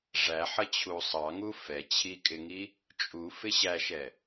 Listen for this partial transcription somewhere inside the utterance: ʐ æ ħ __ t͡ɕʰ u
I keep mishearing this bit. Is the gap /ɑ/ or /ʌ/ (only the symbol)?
ʌ